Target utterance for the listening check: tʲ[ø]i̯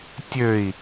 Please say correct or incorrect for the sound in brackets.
correct